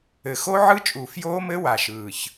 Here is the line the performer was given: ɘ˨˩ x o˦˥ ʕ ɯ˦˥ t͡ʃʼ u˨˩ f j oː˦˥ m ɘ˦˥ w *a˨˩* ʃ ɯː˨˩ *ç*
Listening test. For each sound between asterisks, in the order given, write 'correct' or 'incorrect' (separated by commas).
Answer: correct, correct